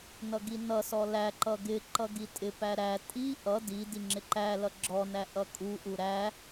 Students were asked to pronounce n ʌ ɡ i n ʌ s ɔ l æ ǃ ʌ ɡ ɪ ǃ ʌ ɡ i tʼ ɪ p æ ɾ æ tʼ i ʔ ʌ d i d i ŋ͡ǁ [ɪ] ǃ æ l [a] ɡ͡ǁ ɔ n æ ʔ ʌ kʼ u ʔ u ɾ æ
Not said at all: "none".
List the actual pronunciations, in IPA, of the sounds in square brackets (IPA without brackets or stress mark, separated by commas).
ɪ, ʌ